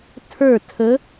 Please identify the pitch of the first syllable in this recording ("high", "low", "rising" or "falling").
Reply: falling